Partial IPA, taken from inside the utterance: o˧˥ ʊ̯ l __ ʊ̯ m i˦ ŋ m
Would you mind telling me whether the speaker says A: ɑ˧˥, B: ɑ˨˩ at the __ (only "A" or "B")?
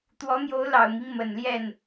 B